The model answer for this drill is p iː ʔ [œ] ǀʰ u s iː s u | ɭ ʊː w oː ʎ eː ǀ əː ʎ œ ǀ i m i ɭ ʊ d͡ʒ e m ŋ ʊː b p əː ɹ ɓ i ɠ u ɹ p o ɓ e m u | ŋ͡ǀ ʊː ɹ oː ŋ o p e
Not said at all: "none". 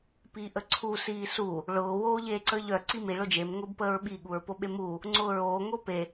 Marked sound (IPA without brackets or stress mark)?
ə